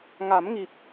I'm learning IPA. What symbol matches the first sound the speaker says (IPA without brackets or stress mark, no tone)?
ŋ